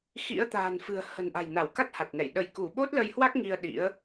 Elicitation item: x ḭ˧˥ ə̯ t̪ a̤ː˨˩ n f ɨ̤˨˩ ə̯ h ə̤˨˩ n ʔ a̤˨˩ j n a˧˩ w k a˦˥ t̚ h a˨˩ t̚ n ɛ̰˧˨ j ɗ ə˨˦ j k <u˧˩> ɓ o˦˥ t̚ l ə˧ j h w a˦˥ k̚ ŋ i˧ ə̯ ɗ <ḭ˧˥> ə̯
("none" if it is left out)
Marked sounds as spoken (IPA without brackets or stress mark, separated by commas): u˧˩, ḭ˧˥